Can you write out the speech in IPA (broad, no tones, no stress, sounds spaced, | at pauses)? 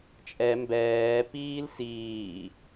t͡ʃʼ ɛ m b ɛː p iː l s iː